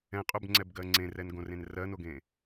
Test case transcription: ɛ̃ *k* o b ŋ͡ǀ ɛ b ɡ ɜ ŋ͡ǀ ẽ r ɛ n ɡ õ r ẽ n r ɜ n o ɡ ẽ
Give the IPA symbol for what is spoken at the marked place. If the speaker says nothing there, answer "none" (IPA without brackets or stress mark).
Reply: qʼ